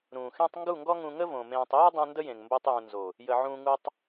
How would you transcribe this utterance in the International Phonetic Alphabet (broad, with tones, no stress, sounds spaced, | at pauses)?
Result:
ɾ ũː˨ x ẽ˦ tˤ ŋ ɡ u˦˨ ŋ ɡ ɔ˦ ŋ ũ˧ ŋ ə˦ v õ˨ m ẽː˧ tˤ j u˦ dˤ ũ˧ n d ə˦ j ẽ˨ ŋ m b o˧ tˤ j ũ˨ n z o˨ | j ə˧ ʕ ũː˦ ŋ u˦ tˤ